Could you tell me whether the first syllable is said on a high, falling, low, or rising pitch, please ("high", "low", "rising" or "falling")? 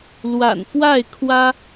low